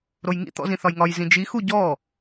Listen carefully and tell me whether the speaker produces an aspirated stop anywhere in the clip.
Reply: no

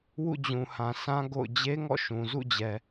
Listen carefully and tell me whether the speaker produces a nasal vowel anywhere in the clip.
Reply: yes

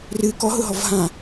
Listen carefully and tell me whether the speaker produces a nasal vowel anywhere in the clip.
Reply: yes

